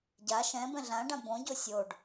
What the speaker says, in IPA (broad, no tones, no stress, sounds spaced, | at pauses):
ɟ a ʃ ɛ̃ b ɛ̃ ɮ ã ɖ ã b õ ɟ o sʲ o ɖ